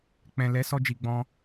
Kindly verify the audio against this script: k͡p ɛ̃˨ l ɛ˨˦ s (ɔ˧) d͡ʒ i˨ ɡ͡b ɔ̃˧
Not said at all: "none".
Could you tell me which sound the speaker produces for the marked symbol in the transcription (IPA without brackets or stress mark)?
ɔ˧